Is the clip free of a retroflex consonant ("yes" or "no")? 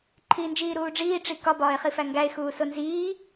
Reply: no